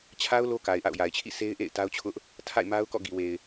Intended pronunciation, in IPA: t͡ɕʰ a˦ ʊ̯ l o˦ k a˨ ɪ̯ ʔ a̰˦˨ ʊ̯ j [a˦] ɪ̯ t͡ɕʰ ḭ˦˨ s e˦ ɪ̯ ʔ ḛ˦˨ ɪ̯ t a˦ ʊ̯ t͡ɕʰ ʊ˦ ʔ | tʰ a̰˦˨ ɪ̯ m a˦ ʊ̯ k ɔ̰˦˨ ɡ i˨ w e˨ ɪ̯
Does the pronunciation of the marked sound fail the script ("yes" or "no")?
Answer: yes